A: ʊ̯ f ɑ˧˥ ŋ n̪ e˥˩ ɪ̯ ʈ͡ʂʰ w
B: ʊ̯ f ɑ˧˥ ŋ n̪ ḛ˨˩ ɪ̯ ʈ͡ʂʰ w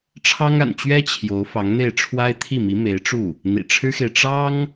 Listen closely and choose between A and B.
A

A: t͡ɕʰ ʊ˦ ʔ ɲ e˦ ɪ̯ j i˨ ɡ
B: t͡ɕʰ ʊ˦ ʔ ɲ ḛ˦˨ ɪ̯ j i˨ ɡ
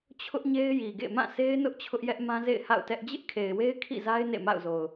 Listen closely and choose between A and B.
A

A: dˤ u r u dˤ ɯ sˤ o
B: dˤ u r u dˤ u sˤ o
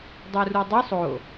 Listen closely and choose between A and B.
A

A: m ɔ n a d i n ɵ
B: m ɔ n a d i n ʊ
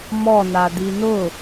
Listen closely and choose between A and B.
B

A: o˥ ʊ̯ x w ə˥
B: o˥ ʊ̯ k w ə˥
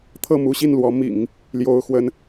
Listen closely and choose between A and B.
A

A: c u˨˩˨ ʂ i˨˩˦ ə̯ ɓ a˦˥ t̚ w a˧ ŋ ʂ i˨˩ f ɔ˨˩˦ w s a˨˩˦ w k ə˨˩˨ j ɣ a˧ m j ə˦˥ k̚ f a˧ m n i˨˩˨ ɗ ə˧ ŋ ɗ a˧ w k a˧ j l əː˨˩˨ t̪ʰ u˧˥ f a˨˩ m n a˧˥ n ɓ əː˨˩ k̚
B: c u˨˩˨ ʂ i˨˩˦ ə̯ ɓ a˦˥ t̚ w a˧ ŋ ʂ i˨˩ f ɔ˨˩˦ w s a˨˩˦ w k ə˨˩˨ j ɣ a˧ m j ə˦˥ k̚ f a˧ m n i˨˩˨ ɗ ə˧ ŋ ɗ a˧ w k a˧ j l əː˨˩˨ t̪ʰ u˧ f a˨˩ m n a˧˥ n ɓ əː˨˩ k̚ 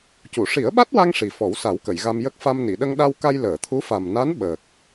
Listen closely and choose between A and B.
A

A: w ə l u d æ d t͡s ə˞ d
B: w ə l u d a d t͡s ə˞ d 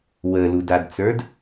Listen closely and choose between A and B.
B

